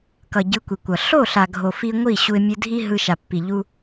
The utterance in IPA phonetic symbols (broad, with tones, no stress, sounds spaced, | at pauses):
k ʌ˨ ɟ ɯ˨˦ kʷ i˨ kʷ ʌ˨ ɬ o˦˨ ɬ a˨ ɡʱ o˨ f i˧ ŋʷ i˦˨ ɕ u˧ ɪ̯ mʲ ɯ˧ dʱ i˦ ɦ ɯ˧ ʃ a˨ pː i˨ ʎ u˧